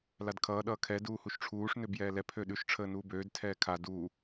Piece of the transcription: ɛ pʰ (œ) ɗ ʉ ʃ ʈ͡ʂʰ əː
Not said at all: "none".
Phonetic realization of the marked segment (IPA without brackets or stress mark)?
ø